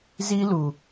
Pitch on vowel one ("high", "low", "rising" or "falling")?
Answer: high